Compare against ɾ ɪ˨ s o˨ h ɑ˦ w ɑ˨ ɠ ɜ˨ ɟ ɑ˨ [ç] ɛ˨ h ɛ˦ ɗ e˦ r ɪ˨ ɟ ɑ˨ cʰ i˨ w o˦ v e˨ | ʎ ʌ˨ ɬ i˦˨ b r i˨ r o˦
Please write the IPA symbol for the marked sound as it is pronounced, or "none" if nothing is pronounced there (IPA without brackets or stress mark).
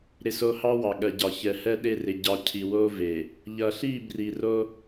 ç